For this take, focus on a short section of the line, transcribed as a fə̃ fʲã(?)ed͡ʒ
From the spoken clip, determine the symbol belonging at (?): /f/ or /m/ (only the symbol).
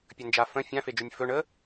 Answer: f